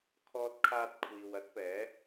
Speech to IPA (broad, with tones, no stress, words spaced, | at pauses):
kʰɔː˧t̚kʰaː˧t̚kʷʰiː˨w ɐ˨˥t̚pɛː˨˧